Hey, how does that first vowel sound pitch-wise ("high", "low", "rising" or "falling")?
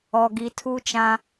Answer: low